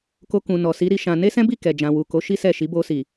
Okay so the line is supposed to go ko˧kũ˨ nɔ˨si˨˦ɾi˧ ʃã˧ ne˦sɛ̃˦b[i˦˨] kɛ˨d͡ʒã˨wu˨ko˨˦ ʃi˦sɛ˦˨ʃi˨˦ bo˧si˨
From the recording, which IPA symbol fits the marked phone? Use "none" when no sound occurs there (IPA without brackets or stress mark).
i˦˨